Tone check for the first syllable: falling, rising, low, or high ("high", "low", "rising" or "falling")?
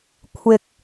rising